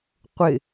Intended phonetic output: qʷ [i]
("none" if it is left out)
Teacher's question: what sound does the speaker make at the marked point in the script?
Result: ɪ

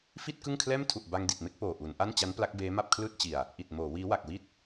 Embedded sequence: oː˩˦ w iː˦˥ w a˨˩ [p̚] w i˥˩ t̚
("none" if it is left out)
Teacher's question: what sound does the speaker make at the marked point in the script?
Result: k̚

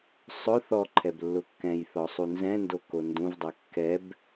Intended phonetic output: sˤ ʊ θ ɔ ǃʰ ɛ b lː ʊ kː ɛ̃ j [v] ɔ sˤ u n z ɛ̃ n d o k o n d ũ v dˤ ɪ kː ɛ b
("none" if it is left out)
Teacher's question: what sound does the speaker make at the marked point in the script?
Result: θ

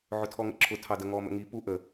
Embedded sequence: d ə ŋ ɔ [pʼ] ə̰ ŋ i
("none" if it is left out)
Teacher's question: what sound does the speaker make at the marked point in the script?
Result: m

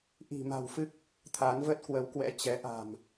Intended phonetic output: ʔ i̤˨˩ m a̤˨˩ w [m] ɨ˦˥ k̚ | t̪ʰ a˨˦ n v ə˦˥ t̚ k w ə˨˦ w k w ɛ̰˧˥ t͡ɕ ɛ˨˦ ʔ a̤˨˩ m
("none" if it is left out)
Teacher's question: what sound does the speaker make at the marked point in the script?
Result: f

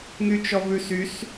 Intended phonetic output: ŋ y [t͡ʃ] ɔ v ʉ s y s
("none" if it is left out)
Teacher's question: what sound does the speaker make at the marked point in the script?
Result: t͡ʃ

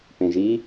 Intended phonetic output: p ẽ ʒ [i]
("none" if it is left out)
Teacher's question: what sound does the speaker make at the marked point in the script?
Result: i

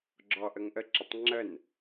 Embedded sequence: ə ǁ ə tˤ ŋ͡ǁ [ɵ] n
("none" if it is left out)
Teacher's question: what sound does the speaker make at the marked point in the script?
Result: ə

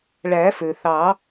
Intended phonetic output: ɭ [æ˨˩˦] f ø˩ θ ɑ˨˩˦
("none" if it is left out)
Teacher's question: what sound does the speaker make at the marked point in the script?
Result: æ˨˩˦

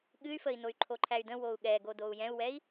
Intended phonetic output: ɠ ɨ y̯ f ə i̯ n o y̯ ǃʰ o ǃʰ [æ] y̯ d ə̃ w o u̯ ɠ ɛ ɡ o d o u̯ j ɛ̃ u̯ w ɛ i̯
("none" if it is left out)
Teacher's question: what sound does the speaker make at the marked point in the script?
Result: æ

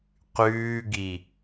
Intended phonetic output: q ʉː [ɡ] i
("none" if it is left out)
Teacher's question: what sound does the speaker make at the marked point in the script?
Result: ɡ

